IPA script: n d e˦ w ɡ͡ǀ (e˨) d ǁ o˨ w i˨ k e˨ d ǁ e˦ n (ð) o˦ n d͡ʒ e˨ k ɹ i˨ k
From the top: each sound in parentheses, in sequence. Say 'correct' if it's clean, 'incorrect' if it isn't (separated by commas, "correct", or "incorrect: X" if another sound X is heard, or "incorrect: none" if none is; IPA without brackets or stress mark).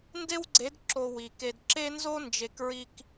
incorrect: e˨˦, incorrect: z